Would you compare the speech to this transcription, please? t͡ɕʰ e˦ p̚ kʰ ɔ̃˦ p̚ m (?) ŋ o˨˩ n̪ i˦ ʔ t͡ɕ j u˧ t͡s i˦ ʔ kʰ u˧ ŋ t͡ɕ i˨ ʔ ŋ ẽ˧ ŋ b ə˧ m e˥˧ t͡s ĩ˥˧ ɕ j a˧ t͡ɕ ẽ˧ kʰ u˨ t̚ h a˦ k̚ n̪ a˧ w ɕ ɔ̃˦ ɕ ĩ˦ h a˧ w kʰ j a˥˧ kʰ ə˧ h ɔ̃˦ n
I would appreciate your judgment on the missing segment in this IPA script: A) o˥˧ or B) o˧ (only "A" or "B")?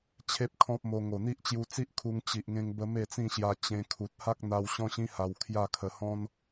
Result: B